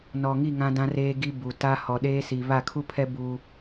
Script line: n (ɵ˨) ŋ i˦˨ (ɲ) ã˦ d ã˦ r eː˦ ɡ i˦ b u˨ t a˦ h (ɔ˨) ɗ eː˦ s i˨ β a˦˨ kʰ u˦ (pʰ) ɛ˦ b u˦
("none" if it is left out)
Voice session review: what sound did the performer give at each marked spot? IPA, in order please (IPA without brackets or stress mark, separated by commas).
ɔ˨, ŋ, ɔ˨, pʰ